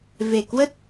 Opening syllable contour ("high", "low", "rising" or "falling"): low